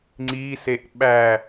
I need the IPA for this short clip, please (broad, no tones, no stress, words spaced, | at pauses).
ŋ͡ǀiseʔ ɓæ